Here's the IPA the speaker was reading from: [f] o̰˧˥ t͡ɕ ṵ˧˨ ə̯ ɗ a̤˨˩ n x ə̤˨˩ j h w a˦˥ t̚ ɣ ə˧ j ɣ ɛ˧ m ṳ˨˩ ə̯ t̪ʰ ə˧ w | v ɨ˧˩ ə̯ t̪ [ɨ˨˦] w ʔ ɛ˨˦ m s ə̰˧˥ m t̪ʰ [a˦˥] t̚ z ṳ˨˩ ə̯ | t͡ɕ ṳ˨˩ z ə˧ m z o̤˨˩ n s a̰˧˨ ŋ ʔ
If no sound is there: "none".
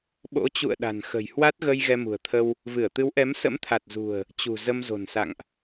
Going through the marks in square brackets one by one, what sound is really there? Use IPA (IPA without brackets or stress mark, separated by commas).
ɓ, ɨ˨˦, a˨˩